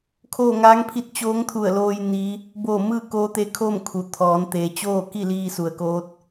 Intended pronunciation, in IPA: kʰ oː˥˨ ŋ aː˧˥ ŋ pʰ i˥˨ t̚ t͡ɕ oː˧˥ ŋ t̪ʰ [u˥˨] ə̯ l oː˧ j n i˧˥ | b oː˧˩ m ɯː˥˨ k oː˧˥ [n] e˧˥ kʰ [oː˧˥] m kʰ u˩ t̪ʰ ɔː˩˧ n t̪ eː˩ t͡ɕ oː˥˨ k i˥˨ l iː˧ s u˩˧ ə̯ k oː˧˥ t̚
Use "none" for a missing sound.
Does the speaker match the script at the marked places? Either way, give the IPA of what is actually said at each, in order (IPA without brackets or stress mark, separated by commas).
u˧˩, t̪, oː˥˨